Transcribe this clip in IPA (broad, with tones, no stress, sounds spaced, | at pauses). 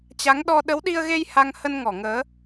t͡ɕ a˨˦ ŋ ɗ ɔ˧ ɗ ə˨˦ w ɗ i˧ ə̯ ɣ e˧ j h a˧ ŋ h ə˧ n ŋ ɔ˧˩ ŋ əː˨˦